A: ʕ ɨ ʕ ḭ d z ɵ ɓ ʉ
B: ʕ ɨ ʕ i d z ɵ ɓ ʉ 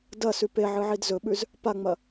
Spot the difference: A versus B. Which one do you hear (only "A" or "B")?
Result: B